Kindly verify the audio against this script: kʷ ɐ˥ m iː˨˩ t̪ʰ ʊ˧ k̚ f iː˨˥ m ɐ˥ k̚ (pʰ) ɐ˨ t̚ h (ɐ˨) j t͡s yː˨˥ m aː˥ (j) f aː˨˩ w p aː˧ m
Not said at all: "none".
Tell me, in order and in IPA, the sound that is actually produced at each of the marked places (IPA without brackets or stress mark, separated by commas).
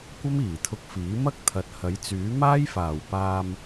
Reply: t̪ʰ, ɐ˨˥, j